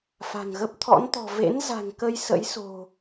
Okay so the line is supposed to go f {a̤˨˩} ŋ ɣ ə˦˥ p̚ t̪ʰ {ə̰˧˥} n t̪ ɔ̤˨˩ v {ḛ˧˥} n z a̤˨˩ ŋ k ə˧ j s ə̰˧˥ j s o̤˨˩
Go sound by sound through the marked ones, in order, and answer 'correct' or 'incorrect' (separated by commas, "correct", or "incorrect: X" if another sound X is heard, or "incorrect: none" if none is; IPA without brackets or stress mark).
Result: correct, incorrect: ɔ̰˧˥, correct